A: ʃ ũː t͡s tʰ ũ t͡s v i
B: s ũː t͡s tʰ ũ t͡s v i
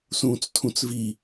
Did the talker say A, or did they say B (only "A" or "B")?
B